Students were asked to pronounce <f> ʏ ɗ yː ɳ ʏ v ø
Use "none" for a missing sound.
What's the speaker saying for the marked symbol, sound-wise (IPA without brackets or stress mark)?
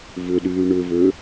v